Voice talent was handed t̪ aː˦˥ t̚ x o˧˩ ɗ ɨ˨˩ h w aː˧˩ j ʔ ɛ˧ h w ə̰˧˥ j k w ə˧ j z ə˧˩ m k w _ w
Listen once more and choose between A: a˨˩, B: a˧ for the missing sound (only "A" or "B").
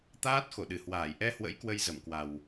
A